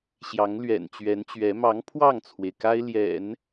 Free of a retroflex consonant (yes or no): yes